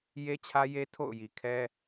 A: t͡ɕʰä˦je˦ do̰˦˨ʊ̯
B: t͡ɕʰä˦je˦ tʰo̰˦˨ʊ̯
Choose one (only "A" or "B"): B